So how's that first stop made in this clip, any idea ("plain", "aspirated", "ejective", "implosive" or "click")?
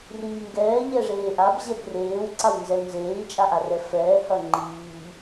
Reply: plain